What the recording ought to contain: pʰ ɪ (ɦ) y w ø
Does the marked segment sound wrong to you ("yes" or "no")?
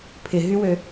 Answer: no